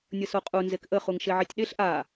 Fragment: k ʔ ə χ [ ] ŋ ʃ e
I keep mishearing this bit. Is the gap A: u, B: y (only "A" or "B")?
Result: A